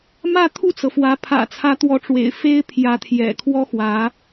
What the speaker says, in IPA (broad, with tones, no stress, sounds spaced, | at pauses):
m ä˥˧ t̪ʰ u˥˩ t͡s ɤ˩ f w ä˧˥ pʰ ä̰˨˩ t͡sʰ ä˧˥ t̪ w ɔ˧˥ ʈ͡ʂ w ḛ˨˩ ɪ̯ f e˥ ɪ̯ pʰ j ä˧˥ t̪ʰ j ɛ̰˨˩ kʰ w ɔ˥ x w ä˧˥